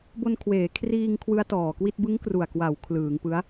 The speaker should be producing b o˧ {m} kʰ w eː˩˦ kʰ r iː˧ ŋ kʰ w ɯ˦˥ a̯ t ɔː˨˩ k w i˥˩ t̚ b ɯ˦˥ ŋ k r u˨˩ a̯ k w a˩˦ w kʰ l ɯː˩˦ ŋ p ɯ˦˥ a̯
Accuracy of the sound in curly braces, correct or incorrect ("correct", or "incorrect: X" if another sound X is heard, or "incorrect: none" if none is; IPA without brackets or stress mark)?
incorrect: n